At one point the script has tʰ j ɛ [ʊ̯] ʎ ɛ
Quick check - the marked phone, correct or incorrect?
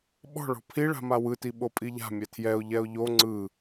correct